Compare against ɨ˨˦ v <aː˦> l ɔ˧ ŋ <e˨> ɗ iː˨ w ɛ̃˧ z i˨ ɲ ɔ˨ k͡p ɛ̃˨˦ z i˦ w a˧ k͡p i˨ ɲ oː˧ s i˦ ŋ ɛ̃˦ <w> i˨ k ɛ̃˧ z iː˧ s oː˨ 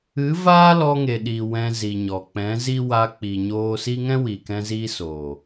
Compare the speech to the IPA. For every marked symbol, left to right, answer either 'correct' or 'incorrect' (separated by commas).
correct, correct, correct